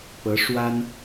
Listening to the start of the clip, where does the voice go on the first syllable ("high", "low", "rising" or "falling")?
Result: rising